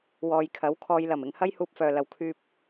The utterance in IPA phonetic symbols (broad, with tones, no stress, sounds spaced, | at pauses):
w ɔː˨ j kʰ ɐ˨˥ w kʰ ɔː˧ j l ɐ˨˩ m ɪ˨ ŋ h ɐ˥ j h uː˧ p̚ f œː˨ l ɐ˨ w kʰ yː˧ p̚